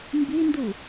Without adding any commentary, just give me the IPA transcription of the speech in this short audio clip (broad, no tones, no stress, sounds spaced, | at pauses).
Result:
m b i n d u